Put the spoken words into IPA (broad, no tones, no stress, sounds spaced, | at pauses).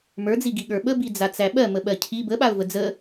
m ə˞ d͡z i ɡ i ɠ ə˞ ɓ ə b i d͡z a t͡s æ ɓ ɜ m ə ɓ ɜ cʰ i b ə ɓ a ʊ̯ v ə d͡z ə